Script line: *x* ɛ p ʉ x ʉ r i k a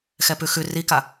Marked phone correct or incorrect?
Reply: correct